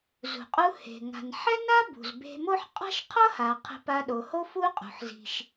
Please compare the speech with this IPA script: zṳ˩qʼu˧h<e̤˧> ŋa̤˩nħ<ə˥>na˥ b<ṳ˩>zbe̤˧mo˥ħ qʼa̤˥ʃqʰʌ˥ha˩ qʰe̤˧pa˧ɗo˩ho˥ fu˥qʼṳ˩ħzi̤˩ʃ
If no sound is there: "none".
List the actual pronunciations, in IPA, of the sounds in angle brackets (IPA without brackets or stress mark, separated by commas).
e̤˩, ɛ˥, ṳ˩